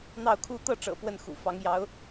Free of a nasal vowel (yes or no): yes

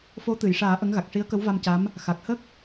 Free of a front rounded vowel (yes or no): yes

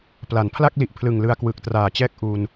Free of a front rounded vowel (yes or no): yes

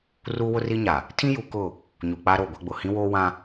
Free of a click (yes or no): yes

